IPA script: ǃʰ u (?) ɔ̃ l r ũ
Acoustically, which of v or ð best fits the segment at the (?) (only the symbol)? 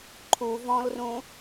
v